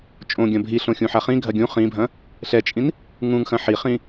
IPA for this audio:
t͡ʃʼ õ ɡʲ ɐ̃ bʱ i ɬ õ xʲ ũ ħ a χ ĩ ɡʱ ɐ ɡʲ ũ χ ĩ bʱ ɐ̃ | ɬ ɛ t͡ʃʼ ĩ n | ŋ ũ ŋ x ɐ̃ ħ i χ ĩ

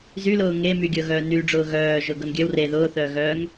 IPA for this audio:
z y l ʊː ŋ e m y ɡʲ ɤ ɣ œː n y ɖ͡ʐ ʊː ɣ œː ʒ ʊː ɡ ɤ n ɡʲ œ w r e ð ʊː θ œː ɣ œː ŋ

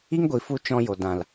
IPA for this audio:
i˦ ŋ ɡʷ i˨ f u˧ t͡ʃ ɔ̃˧ j o˨ d ã˨ l

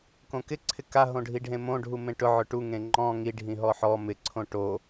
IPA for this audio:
k õ k ɪ ǀʰ ɪ k a ɦ õ ɖʱ i ɖʱ ẽ m õ ɖʱ u m ẽ ʈ ʊ ʕ ʊ ʈ u ŋ ẽ ŋ͡ǃ ɔ̃ ŋ i ɖʱ ĩ ɦ ɔ ħ ɔ m ɪ ǀʰ õ ʈ o

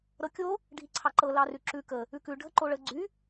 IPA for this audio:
ɾ ɤ kʲ o | ɖʱ i ǀʰ ɑ ǃ ɤ l ɑ r ʉ ǁ ʉ k ə | ʉ k ʉ ɖʱ ə ǃ o ɭ ə ɡ͡ǀ y

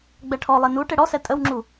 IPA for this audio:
ɡ͡b ɛ ʈʰ ɔ lˠ e n u ʈ e ɽ ɔ s ɛ tʼ ə w ŋ͡ǁ u

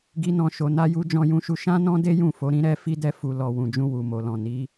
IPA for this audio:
ɡ i˦ n ɔ̃˦˨ ʃ o˧ n a˧ j u˧ d͡ʒ ɔ̃˧ j ũ˧ ʃ u˧ ʃ ã˦ n ɔ̃˦ d e˦ j ũ˦˨ f o˨˦ ɾ ĩ˦ ɾ ɛ˦ f i˦ d ɛ˧ f u˨ l ɔ˨ w ũ˨ d͡ʒ ũ˧ w u˨ m o˨ l ɔ̃˨ n i˨˦

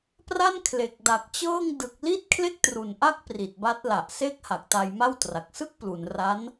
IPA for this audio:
p r a˥˩ n kʰ l e˨˩ k̚ d a˨˩ k̚ t͡ɕ ɤː˥˩ ŋ d ɯ˨˩ k̚ l i˥˩ t̚ kʰ l e˥˩ k̚ t r u˨˩ n ʔ a˥˩ k̚ p r i˨˩ t̚ b a˦˥ t̚ l a˨˩ ʔ s e˥˩ k̚ h a˨˩ k̚ t a˧ j m a˥˩ w t r a˨˩ k̚ s ɯ˥˩ k̚ p l u˩˦ n r a˦˥ n

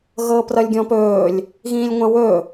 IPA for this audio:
ɣ ɤː p r ʌ lʲ ɡʲ ɔ̃ p ɵː lʲ | ɣ ĩː lʲ ŋʷ ã w ɵ

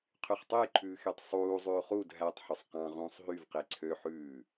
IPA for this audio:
qʰ y χ tˤ e j ǃʰ ʉː x e tˤ sˤ uː zˤ ʉː χ u d ɦ æ tˤ ħ ɵ sˤ q ɑ̃ ʁ ũː sˤ ɦ y v q e ǀʰ ø ħ ʉː

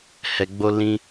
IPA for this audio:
h ɛ˨ ɡ͡b o˧ l ĩ˧

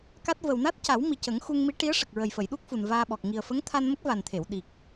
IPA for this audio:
k a˦˥ t̚ v ə˨˩ w n a˦˥ t̚ c a˨˩˦ w m i˨˩ c ə˨˩˦ ŋ x u˧ ŋ m i˧˥ ʈ i˧˥ ə̯ ʂ ə˨˩ k̚ ɹ ə˨˩ j f ə˨˩˨ j ɗ u˦˥ k̚ f u˨˩ n v aː˧ ɓ ɔ˨˩ k̚ ŋ i˨˩ ə̯ f ə˧˥ ŋ t̪ʰ a˧ n m ə˦˥ k̚ v a˨˩ n t̪ʰ e˨˩˨ w ɗ i˨˩ k̚

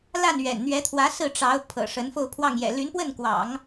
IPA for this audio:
l a˥˩ n ɥ ɛ̰˨˩ n n̪ ɥ ɛ˧˥ t̪ʰ w ä˧˥ s ɹ̩˥˩ ʈ͡ʂ ɑ˧˥ ʊ̯ pʰ ɤ̰˨˩ ʂ ə˧˥ n f o˥˧ ʊ̯ pʰ w ɑ˥˩ ŋ j ɛ̰˨˩ l y˧˥ n p w ə˥˩ n k w ɑ̰˨˩˦ ŋ

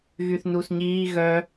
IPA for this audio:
ɣ y θ n u s ɲ iː ɣ œ

